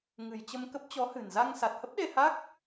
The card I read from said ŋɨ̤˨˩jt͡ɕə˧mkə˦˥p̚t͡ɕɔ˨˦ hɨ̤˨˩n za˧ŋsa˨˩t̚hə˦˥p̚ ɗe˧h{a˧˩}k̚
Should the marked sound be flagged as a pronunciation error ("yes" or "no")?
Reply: yes